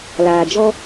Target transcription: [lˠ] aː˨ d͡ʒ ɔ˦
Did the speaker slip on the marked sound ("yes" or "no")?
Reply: yes